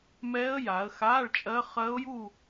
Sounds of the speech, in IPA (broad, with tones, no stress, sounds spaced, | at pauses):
m ɛː˦˥ ə̯ j a˩˧ ə̯ x aː˧˥˧ ɭ t͡ʃʼ ɜ˦˥ χ ɜ˦˥ ʊ̯ j u˥˧